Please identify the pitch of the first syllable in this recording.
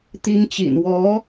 high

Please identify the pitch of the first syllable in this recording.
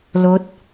rising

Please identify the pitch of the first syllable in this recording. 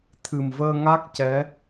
low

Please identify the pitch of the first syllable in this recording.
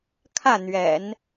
falling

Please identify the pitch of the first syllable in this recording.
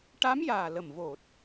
rising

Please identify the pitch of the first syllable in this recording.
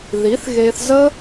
rising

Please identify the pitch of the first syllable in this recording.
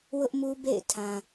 high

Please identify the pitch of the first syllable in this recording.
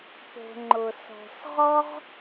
low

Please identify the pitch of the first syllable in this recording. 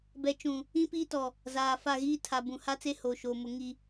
low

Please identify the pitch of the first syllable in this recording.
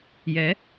rising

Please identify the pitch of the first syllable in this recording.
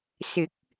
rising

